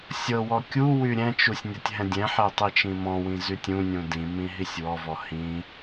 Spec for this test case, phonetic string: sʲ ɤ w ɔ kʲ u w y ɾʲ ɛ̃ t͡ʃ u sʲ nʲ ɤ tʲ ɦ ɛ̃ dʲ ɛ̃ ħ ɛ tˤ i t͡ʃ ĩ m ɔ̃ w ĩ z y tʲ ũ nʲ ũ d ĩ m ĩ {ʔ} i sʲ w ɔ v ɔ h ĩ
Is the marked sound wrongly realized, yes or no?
yes